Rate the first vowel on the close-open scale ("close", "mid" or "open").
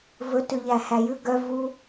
mid